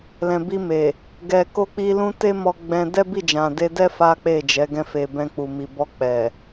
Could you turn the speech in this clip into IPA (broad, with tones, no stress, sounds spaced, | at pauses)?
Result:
l ɛ̃˨ b i˧ m e˨ | ɡ ɛ˨ k o˧ k͡p i˧ l ũ˦ t e˦ m ɔ˧ ɡ͡b ɛ̃˧ d ɛ˦ b i˦˨ d͡ʒ ã˨ d e˧ d ɛ˦ f a˦ k͡p e˦˨ d͡ʒ ɛ˨˦ ɡ ɛ̃˧ f e˨ b ɛ̃˧ k͡p u˨ m i˨ b ɔ˧ k͡p ɛ˨